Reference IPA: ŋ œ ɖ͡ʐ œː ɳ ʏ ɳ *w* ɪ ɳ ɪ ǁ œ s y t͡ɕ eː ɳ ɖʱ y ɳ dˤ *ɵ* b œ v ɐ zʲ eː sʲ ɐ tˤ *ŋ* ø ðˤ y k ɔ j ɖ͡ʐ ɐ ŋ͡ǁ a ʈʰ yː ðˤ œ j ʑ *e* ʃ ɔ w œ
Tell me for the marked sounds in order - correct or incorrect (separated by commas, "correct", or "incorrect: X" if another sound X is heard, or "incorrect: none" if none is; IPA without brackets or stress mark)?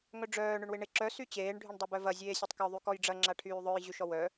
correct, incorrect: œ, incorrect: k, incorrect: y